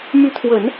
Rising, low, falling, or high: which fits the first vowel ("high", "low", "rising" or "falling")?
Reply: rising